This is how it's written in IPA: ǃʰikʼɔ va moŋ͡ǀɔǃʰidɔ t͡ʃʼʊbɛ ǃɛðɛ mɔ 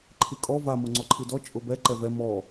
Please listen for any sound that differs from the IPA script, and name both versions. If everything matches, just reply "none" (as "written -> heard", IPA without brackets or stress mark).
ð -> v